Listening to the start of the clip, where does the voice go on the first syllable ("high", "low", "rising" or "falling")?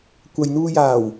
low